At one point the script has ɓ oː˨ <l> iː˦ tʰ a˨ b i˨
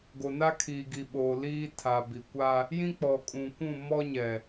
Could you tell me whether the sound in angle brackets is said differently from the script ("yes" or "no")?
no